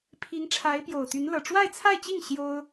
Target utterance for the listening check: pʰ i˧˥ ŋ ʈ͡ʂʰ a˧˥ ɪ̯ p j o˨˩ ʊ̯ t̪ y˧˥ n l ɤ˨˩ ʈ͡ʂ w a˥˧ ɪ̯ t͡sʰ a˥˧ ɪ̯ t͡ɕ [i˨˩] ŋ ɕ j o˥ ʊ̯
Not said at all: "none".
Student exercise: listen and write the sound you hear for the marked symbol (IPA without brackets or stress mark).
i˥˩